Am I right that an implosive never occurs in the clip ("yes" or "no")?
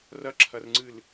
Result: yes